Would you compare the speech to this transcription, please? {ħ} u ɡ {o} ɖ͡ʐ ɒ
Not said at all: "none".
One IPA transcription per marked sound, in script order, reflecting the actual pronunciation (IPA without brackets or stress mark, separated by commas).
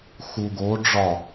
x, o